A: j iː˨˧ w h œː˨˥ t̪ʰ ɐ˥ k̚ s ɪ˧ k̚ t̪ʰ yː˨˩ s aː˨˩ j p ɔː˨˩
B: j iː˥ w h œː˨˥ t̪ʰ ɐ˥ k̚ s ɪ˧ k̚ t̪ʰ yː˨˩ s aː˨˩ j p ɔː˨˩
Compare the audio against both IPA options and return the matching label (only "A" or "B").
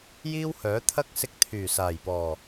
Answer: B